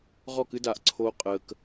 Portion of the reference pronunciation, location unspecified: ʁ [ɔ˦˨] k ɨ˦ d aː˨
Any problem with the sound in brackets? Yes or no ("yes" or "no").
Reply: no